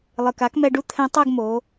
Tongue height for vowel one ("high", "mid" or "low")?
high